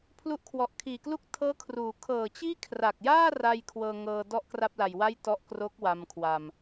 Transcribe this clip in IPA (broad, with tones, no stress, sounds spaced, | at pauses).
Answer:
pʰ l u˦˥ ʔ kʰ w ɔ˨˩ ʔ kʰ iː˨˩ k l u˥˩ k̚ tʰ ɤː˦˥ kʰ r uː˩˦ kʰ ɤː˨˩ t͡ɕ iː˥˩ kʰ r a˨˩ k̚ j aː˥˩ r a˧ j kʰ w ɤː˧ ŋ ɤː˧ d ɔ˥˩ ʔ k r a˥˩ p̚ l a˨˩ j w a˥˩ j t ɔ˦˥ ʔ k r o˦˥ k̚ w a˧ m kʰ w a˧ m